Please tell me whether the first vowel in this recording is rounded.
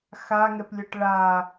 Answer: no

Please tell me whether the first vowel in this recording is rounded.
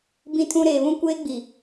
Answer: no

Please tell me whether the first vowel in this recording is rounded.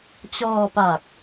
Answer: yes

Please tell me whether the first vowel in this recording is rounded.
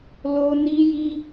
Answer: yes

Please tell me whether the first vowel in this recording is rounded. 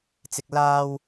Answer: no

